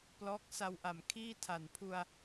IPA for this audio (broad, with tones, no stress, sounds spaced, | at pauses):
p l ɔː˦˥ k̚ s a˧ w ʔ a˨˩ m kʰ iː˥˩ tʰ a˨˩ n pʰ u˧ a̯